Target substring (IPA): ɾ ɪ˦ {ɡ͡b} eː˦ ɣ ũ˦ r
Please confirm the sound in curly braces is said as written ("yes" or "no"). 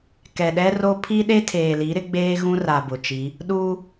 yes